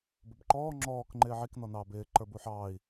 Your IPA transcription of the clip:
bʊbǃɔː ŋ͡ǁɔːk ŋ͡ǃɪːʕik nɔnɑːbɪː ǃə˞buħɑːi̯

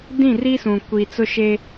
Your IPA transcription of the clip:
dĩ˦˨ri˦sũ˨ kʷi˨t͡sʊ˦ʃe˦

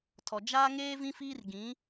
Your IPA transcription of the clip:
tʰɔ˨ d͡ʒaː˦ŋeː˦ vĩ˦fiː˦r ɡĩ˨˦

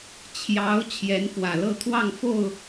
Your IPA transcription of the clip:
t͡ɕʰjɑ˧˥ʊ̯ t͡ɕʰjɛ˧˥nfwä˨˩lɤ˥˧t̪ʰwɑ˥˧ŋ fo˥˩ʊ̯

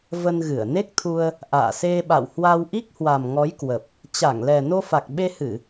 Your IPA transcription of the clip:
və˧nɣɨ˧˩ə̯ ne˦˥k̚t̪ʰu˧ə̯ | ʔa̰ː˧˨se˧ ɓa̰˧˨whwa˧wʔi˦˥k̚ hwa˨˩mŋɔ˨˦jkwə˨˩p̚ | t͡ɕa˧˩ŋlɛ˨˩ no˧fa˨˩k̚ɓe˧hɨ˧˩˨

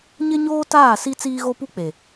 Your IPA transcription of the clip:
ɲɪ˦ɲoː˦taː˦˨si˦ t͡siː˦ɣo˦pu˦k͡pe˨

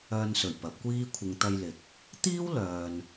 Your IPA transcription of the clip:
œː˧nsɵ˨˩ɥ pɐ˨˥p̚kʷiː˥ kʷʰɪ˨ŋt̪ɐ˧jlɪ˨˥k̚ | t̪iː˥wlœː˨n

